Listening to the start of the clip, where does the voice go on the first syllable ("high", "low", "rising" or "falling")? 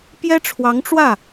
high